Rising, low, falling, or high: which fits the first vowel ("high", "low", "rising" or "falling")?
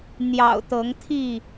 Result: low